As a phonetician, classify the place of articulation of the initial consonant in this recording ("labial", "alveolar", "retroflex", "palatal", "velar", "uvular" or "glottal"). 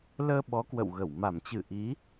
alveolar